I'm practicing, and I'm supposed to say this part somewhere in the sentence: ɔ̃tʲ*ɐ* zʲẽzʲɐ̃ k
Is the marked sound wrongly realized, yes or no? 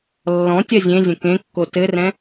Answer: no